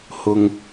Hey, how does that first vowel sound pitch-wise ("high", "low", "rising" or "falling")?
high